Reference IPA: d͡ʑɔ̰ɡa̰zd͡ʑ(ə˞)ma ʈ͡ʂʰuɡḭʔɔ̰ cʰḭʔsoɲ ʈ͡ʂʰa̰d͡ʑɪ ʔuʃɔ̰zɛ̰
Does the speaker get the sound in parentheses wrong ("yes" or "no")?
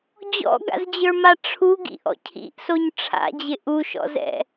no